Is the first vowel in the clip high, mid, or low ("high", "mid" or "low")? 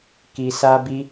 high